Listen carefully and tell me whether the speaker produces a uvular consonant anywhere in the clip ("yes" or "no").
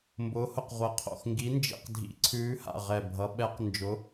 yes